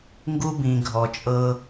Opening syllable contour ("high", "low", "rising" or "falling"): high